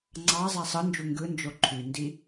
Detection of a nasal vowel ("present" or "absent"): absent